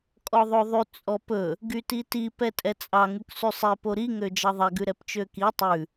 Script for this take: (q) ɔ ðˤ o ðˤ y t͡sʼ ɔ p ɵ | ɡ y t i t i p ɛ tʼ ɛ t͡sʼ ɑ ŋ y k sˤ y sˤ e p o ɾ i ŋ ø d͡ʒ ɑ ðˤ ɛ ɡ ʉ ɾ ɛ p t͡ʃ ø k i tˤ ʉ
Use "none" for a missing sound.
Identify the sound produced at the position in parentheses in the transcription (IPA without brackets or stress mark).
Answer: kʼ